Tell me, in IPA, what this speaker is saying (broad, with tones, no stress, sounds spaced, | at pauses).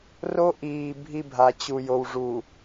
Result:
r o˦ ʔ iː˨ bʱ i˦ bʱ a˨ t͡ɕ u˨ j o˨ w ʐ u˨